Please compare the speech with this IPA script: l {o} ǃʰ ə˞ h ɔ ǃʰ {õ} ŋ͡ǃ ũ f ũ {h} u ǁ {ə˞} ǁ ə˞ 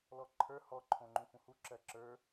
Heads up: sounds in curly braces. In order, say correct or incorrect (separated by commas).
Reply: incorrect, correct, correct, incorrect